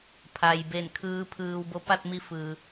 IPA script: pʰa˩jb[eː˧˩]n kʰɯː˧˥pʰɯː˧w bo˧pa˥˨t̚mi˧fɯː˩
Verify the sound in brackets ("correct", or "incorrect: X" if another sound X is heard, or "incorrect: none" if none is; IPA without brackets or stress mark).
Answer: incorrect: e˧˩